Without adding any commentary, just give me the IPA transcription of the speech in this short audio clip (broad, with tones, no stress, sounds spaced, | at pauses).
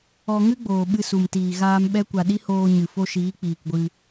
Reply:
ɔ˧ ŋ ɨ˦ ɡ͡b oː˨ ɓ ɨ˧ s u˨ m t iː˨ ɣ aː˧ m ɓ ɛ˦ kʷ a˧ ɗ i˦ h oː˧ ɲ ɨ˨ f o˧ ʃ iː˨˦ k͡p iː˨ k ɡʷ ɨ˧